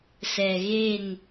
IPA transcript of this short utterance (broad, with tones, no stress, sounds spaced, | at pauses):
s ɛ˨ ɣ e˦˨ n